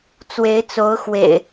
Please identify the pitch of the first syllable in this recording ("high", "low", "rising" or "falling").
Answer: rising